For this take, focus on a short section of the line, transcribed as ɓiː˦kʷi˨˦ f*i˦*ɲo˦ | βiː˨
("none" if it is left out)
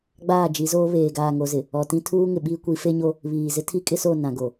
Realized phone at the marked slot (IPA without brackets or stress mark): e˦